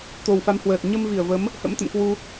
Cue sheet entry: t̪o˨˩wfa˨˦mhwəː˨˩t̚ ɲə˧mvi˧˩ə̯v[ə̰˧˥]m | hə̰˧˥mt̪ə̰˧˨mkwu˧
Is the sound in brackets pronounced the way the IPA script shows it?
no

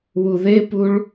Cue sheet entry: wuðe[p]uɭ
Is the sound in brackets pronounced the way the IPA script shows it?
yes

